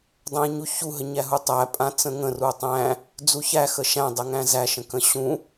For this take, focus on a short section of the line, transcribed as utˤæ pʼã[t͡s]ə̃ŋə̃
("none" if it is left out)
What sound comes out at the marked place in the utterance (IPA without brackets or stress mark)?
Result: t͡s